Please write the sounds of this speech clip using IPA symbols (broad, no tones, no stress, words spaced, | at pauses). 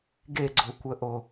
ɡeɡ͡ǀokʷəʔo